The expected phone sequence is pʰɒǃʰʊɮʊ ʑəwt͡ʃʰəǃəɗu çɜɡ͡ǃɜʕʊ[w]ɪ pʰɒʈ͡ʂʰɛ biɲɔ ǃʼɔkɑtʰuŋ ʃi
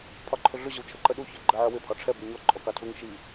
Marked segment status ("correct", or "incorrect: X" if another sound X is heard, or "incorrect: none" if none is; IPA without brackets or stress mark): correct